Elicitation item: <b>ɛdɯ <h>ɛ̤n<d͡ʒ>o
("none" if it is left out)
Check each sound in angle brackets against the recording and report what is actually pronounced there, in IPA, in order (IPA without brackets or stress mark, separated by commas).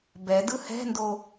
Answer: b, h, d